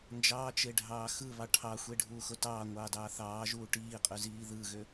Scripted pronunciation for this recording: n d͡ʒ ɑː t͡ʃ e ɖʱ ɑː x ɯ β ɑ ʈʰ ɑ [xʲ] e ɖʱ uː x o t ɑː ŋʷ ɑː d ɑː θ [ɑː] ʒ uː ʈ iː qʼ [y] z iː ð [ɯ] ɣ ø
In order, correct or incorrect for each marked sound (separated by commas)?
incorrect, correct, correct, correct